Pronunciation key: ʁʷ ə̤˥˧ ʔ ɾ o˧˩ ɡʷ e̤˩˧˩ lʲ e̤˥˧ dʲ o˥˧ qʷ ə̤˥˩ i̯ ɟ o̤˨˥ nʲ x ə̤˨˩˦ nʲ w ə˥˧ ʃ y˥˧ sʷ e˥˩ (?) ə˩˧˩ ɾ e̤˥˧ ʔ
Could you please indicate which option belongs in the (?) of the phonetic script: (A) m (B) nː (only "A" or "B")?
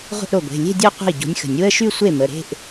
A